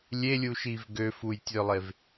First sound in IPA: lʲ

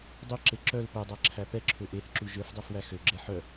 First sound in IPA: dˤ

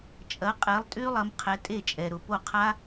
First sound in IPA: t͡ʃʼ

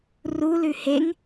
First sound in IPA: r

